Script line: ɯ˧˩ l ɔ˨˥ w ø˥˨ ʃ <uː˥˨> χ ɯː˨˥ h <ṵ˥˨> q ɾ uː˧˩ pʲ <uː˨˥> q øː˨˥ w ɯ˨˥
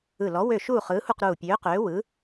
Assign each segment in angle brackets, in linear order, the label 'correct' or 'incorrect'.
correct, incorrect: u˥˨, incorrect: øː˨˥

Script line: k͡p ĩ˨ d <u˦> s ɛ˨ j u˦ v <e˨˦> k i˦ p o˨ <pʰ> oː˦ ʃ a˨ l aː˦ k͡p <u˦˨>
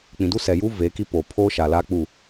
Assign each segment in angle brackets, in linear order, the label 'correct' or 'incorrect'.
correct, correct, correct, correct

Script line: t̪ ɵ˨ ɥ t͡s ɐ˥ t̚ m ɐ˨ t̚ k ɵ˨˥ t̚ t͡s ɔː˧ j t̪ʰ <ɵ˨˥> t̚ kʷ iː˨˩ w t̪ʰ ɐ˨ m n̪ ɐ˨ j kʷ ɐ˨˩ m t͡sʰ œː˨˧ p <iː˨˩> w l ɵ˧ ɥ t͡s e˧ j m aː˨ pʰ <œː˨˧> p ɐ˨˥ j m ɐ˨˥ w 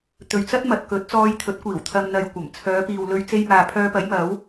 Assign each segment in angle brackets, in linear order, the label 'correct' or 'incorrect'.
correct, incorrect: iː˨, incorrect: œː˧

